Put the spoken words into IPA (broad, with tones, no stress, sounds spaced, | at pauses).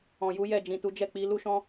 ɔ̃˨ j u˨˦ j ɛ˦˨ d͡ʒ ĩ˨ t u˨˦ d͡ʒ ɛ˦˨ k͡p i˨˦ l u˦ ʃ ɔ̃˦